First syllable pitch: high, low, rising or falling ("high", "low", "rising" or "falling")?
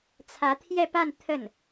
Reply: rising